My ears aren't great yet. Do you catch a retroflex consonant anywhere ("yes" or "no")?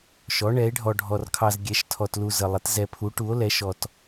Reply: yes